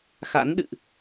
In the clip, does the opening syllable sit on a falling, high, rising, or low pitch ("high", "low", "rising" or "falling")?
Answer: rising